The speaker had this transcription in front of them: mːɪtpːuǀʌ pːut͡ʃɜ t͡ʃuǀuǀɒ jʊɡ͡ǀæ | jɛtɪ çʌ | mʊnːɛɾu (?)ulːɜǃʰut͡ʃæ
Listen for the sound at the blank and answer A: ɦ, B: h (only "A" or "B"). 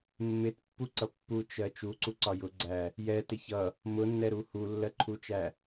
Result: B